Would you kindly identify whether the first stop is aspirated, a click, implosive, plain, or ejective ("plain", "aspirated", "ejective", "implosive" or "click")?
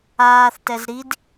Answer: plain